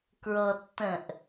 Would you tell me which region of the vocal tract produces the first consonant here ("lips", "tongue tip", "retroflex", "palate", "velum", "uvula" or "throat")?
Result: velum